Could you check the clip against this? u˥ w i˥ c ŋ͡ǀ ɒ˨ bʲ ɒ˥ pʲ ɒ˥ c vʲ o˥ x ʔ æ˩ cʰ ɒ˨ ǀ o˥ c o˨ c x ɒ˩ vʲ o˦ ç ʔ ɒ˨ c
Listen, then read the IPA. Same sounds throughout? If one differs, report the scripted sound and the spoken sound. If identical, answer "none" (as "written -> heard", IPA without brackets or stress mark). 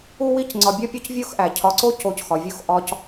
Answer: ç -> x